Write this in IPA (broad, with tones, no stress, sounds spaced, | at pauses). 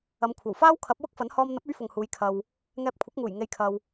ɐ˨˧ m kʷʰ ɐ˨˩ w f aː˥ w kʰ ɐ˨˥ p̚ w ʊ˥ k̚ f ɐ˨˥ n h ɔː˧ m n̪ ɐ˨˥ p̚ ɵ˨˥ ɥ f ʊ˨ ŋ h uː˨˧ j kʰ ɐ˨ w | ŋ ɛː˧ p̚ kʷʰ ɐ˨˥ k̚ ŋ uː˨˩ j ŋ e˨ j kʰ ɐ˨ w